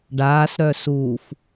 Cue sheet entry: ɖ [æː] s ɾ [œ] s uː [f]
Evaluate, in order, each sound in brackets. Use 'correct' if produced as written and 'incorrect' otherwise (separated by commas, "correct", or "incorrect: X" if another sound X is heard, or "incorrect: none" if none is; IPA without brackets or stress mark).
incorrect: aː, correct, correct